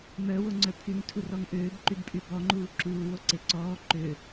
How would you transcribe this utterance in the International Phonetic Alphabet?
mœwoŋ͡ǀœ pʰyŋtʰurɔŋ ʔøːbǃybpʼy bɔŋ͡ǃuː ǁuːwoǀe ǀɔː ǃø

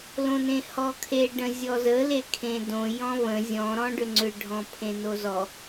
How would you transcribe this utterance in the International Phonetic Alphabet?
lõnẽhɔkʰe ɖə̃zʲɔzə lekʰẽdõ jɔ̃βə̃ zʲɔ̃ ɾɔ̃ɖʏŋ͡ǀʏ ɖʱɔ̃pʰẽnozɔ

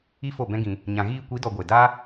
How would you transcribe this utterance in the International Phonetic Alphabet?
i˦fo˦˨bɛ̃˦ɡĩ˧ | ɲã˨ɣiː˧kʷi˨˦dɔ˨ ɡʷe˨ da˦

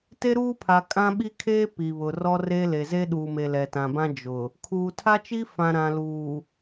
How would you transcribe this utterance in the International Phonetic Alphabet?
te˦ɾuː˦pʰa˨ kʼã˦ɓi˦kʰeː˦ pi˨βʊ˨ rɔ˦re˦le˨ ze˦ ɗuː˨me˨ lɛ˨tã˨bã˦ d͡ʒʊ˨ | kʰuː˨ tʰa˦t͡ʃi˦fã˨ ɾã˨luː˨

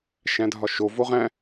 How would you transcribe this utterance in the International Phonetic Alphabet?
ʃæ̃dʱɒʃo voʁæ̃

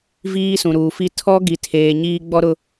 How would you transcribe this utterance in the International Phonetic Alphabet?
viː˦sũ˨ɾuː˨fi˦ tʰɔ˦ ɡi˨tʰeː˨ ɲiː˦ ɡ͡bɔ˦ɾʊ˦

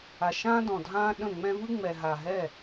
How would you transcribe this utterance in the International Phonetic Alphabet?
a˨ʃãː˦dɔ̃˨dʱãː˦ ɗə̃˦˨ŋ͡mɛ̃˦ vɯ˦ŋ͡mɛ˨ ɦa˨ɦɛ˦˨

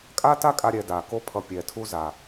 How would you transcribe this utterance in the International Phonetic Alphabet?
kʼa˦ta˦kʼa˧ ɾʲɛ˧da˨ko˦ pʰʌ˧pʲɛ˨tʰu˦za˨

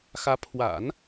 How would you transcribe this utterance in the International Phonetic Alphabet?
xä˧˥ pʰwa̰˨˩˦n

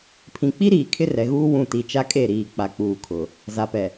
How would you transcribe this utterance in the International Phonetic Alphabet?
pʰĩ˨k͡pi˦ɾiː˨ kʰɪ˦rɛ˨ɣuː˦ wũ˦˨ ti˨t͡ʃa˦kʼe˦˨ɾiː˨ k͡pa˨k͡puː˨kʰʊ˨ | za˨pɛ˨

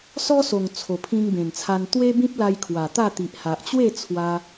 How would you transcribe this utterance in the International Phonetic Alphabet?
sɔ˦so˨˩ŋ t͡sʰo˨˩pʰĩ˧ŋbẽ˨˩nt͡sʰa˧n t̪we˦bĩ˦p̚la˧j kʰwa˨˩t̪a˥˧ t̪i˨ʔha˨ʔt͡ɕwe˥˧t͡sʰwa˧

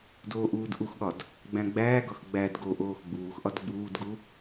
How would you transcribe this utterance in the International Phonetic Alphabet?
doːʔuːdʔuxɠɒd | ɡ͡bæ̃ɡ͡bæːɡɒx ɡ͡bæd ɡoʔoːx ɡ͡buːxʔɒd ɡ͡buːdɡu

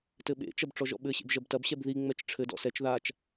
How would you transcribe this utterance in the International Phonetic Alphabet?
tɘɓḛt͡ʃɐb ʈ͡ʂɔʒɔ̰ɓɘɕḛb ʒɐbtɐbɕɛb ðiŋ͡mɛt͡ʃ ʈ͡ʂʰɘdɔ̰ sɛt͡ʃ ðat͡ʃ

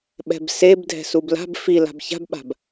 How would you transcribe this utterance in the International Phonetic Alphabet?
ɓɛ̤bseb dʱɛ̤subla̤b fila̤b ça̤bɓa̤b

